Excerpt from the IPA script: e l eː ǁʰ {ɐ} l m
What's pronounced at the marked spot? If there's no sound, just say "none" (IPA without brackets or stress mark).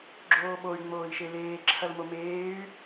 ɐ